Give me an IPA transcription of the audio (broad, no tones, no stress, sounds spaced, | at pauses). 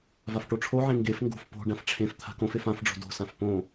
v a f ʈ o ʈ͡ʂʰ o ʕ ẽ ŋ ɡ e f ŋ ɡ o̤ f p o̤ ɖ ã f ʈ͡ʂʰ ẽ f t̪ʰ a̤ k õ f e f ã f ɖ͡ʐ o̤ d o̤ s ã f p õ